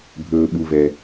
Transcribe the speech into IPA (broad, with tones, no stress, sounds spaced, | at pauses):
bʱ ɵː˧ ɓ u˧ v ɛ˧